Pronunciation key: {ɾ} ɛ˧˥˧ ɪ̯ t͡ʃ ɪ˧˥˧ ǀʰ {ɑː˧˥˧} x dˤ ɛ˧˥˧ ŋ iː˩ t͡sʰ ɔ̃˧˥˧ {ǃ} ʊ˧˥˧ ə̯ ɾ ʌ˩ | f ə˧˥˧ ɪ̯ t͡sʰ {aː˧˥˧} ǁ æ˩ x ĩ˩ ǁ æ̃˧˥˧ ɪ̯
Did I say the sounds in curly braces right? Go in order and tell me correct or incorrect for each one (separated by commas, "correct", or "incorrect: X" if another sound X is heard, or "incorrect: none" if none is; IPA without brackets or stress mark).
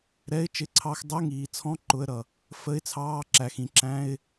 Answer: correct, incorrect: ɑ˧˥˧, correct, incorrect: ɑː˧˥˧